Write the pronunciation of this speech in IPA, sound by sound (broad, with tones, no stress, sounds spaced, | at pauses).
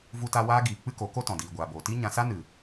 v u˧ t a˧ w aː˦ ɡ iː˨ k͡p ɨ˦ k o˨˦ k o˦ t ɔ̃˨ d iː˨ ɡʷ aː˨ b oː˨ t i˦ ɲ ã˧ s a˦ n ɨ˨